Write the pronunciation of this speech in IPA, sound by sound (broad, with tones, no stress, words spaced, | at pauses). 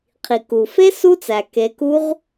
qʰi˩ku˩fe˦˥ su˦˥t͡sæ˩ke˩˧ku˦˥ʁ